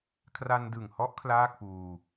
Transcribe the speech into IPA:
kʰ r a˧ n d ɯ˨˩ ŋ h ɔ˦˥ ʔ kʰ l aː˥˩ k̚ p uː˧

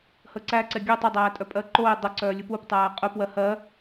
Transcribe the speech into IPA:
h ə ǀ æ ǀ ɛ ɡʲ œ tˤ ə dˤ æː tʼ œ pʼ ɜ ǃ o ɪ̯ dˤ ə ǀ œː lʲ u p u p tˤ æː qʼ ʉ p w ɜ h ɜ

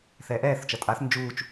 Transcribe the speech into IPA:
θ ɛː ʔ ɛː θ t͡ʃ ʌ tʼ a θ n d͡ʒ uː t͡ʃ

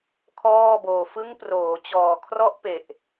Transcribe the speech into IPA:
kʰ ɔː˥˩ b oː˧ f ɯ˦˥ ŋ p r oː˩˦ t͡ɕ ɔː˨˩ kʰ r ɔ˦˥ ʔ p e˨˩ ʔ

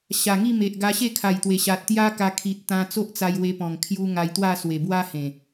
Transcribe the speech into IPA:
ɕ a˨˩ ŋ i˥˧ m e˨ ʔ ɡ a˧ ɕ e˥˧ kʰ a˨˩ j t̪ w e˨˩ ɕ a˨ t̚ t̪ j a˦ k a˧ kʰ i˨ t̚ t̪ ã˧ t͡s o˦ ʔ t͡s a˧ j w e˧ p ɔ̃˨˩ ŋ kʰ j u˧ ŋ a˧ j t̪ w a˥˧ s w e˨˩ b w a˦ h ẽ˨˩

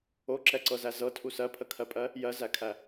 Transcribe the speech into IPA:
o ǁ ɛ ǀ ɤ z æ z ɤ tʰ u s ɜ pʰ ə kʰ ɜ pʼ ɜ | j ɜ z æ kʰ æ

